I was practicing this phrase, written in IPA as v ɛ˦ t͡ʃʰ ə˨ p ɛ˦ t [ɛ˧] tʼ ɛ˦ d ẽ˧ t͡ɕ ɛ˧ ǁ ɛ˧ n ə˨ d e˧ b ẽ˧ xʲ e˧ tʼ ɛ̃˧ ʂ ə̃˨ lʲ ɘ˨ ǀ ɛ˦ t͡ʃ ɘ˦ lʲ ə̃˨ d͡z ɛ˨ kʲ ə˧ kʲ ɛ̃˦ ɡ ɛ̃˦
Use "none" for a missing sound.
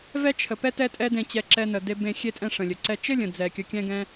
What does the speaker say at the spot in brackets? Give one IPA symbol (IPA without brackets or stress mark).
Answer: ɛ˦